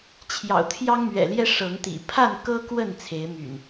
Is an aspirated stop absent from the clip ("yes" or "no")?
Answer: no